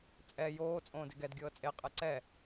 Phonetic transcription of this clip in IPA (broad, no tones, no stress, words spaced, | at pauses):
t͡sʼɛ joː t͡sʼõːdeɡɛd ɡʲɤːt͡sʼe qʼɛǀɛ